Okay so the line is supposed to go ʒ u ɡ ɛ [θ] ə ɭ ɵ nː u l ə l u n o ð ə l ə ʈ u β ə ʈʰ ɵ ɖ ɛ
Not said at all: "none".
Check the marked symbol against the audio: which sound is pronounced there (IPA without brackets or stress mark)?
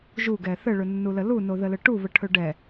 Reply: θ